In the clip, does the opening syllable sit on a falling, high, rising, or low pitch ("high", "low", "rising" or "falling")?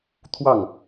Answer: falling